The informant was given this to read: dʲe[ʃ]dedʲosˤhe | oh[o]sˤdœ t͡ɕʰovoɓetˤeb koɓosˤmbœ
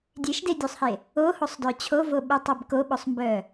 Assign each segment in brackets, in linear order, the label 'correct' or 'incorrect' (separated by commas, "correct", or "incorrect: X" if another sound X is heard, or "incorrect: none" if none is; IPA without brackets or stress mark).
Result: correct, correct